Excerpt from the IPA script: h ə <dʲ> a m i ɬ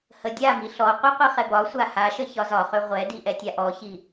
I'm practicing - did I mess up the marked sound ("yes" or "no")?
no